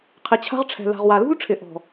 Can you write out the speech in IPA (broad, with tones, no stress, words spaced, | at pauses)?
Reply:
qʰɪ˨t͡ɕʰa̤˦ʁʈ͡ʂʰɛ̤˨ la̤˨ʁwa˨lṳ˦lʈ͡ʂʰɪ˨ ʔɔ̤˨